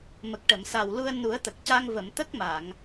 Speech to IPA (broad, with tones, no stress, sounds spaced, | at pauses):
m ə˨˩ k̚ ʈ ə˨˩˨ m s a˨˩ w l u˧ ə̯ n u˨˩˦ ə̯ t̪ ə˨˩ k̚ c a˧ ŋ v ə˨˩˨ m t̪ ə˦˥ k̚ m a˨˩˨ ŋ